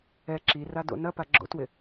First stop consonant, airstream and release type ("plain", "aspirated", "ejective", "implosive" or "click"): click